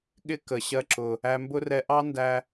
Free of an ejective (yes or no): yes